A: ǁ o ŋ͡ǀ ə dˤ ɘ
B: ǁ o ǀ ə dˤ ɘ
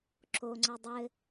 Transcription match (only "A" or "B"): A